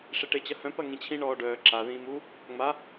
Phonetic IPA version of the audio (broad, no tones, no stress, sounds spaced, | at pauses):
ʂ e ʈ e t͡ɕ ɐ h œ̃ p ɐ ŋ ĩ t͡ɕʰ ĩ ɳ ɔː ɖ œː ǁ a ð ĩː m u | ŋ͡m a